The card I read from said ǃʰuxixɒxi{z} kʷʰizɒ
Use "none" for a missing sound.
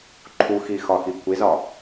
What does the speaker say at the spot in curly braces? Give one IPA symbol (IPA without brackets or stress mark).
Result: none